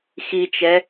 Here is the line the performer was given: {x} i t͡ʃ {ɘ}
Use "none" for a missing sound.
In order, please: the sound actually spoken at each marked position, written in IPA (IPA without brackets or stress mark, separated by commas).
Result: x, ɛ